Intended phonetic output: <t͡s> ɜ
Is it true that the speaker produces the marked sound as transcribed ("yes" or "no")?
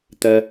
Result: no